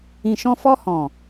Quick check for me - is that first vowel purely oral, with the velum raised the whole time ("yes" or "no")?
no